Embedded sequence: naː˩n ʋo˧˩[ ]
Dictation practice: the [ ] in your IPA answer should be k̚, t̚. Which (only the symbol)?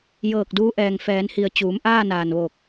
k̚